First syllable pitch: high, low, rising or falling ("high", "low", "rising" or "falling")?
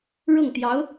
falling